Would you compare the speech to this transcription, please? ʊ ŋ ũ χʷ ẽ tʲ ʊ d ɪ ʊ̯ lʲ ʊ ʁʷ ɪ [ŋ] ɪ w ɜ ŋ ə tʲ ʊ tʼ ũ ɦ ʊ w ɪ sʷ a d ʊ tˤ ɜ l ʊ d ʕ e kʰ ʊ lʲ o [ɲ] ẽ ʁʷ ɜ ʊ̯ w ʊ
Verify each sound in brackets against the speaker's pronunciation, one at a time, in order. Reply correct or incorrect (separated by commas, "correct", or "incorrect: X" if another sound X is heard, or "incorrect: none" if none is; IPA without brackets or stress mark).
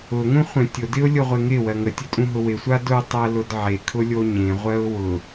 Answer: correct, correct